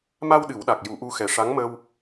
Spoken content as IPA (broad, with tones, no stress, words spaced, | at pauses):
ma˧w ɗɨ˨˩˦wɗa˨˩k̚ ju˨˩˦ʔu˧xɛ˨˩ ʂa˧˥ŋmə˧w